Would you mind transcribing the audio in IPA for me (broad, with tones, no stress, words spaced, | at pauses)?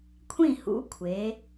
kʷʰĩ˧˩hṵ˩˧ kʷʰe˩˧